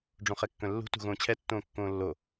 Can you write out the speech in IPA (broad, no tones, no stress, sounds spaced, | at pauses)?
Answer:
ɖ͡ʐ õ χ ɛ kː œ̃ lː ṳ t ṳ ɣ õː t͡ɕʰ ɛ tː õː kː õː lː o